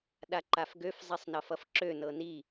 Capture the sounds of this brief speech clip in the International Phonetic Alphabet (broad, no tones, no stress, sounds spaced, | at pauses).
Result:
ɗ a ǃ a f ɡ ø f zˤ i sˤ n ʌ f ʌ f ǁ ø n ɤ n i